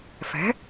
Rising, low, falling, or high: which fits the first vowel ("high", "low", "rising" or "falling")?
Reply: rising